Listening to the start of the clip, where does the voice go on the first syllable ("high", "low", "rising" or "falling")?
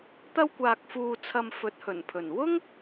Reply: high